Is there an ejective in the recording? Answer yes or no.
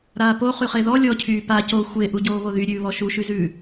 no